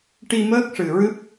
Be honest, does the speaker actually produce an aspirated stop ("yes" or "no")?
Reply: no